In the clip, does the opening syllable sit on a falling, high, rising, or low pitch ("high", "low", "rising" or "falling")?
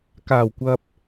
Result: low